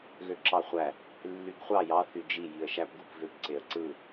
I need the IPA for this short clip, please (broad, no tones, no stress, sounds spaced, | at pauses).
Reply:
ɣ ø ǁ ɑ χʷ æ | lː y ɡ χʷ ɑ j ɑ θ y d͡ʒ i j i ə̯ ʃ æ p ɡ u p v ø p ǀ e ə̯ ǀ ɯ